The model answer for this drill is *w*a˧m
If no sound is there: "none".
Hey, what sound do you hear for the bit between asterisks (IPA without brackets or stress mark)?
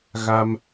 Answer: ɣ